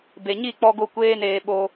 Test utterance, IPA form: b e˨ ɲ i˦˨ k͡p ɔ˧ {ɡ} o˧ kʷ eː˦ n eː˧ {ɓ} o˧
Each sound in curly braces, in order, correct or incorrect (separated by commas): correct, correct